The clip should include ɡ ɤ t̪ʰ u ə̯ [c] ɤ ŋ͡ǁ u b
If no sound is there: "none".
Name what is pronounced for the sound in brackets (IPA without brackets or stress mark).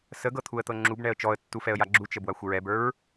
t̪